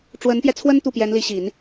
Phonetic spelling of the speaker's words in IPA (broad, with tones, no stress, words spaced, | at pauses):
ʈ͡ʂwə˧˥npjɛ˧t͡sʰwə˥n t̪u˥˩pjɛ˧˥nli˧˥ɕi˨˩˦n